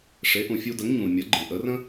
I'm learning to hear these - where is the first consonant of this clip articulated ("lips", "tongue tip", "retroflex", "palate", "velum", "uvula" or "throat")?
retroflex